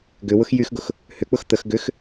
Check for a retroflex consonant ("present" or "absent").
absent